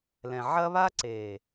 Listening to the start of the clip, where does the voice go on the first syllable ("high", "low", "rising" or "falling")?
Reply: low